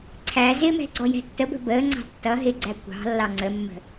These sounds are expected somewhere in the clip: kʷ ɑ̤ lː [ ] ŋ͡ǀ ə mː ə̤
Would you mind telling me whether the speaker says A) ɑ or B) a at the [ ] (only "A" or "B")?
A